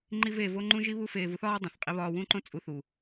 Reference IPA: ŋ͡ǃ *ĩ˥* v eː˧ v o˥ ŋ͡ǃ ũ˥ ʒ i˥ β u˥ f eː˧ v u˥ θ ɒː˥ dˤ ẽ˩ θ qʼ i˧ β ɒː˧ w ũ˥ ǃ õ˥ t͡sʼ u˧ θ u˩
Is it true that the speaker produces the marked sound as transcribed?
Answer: no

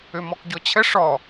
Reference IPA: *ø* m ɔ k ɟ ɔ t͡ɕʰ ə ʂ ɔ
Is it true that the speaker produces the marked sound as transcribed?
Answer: yes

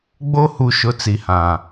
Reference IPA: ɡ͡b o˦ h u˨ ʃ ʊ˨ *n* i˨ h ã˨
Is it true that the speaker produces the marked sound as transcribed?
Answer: no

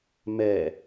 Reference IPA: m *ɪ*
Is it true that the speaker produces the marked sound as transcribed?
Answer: no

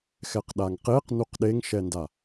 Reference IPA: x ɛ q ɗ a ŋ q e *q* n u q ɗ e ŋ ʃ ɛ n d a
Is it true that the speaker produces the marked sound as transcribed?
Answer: yes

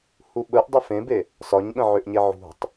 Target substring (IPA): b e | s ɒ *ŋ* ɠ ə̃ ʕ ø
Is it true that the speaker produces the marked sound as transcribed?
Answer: no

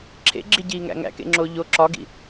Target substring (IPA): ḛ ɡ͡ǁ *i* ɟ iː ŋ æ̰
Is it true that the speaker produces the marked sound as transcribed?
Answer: yes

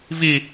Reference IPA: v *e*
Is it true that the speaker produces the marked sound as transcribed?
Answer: no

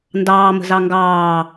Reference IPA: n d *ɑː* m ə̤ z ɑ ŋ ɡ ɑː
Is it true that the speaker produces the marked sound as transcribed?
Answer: yes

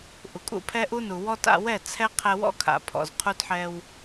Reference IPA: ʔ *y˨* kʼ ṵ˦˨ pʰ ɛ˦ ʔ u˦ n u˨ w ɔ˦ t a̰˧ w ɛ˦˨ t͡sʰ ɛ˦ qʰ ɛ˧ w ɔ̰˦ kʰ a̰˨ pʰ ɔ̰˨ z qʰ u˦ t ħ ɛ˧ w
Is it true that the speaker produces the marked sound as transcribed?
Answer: no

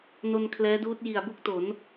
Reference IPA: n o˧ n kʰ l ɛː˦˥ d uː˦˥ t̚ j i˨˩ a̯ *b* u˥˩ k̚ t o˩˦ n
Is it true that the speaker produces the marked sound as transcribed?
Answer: yes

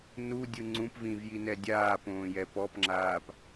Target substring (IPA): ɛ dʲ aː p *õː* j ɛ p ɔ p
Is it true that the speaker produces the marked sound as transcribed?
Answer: yes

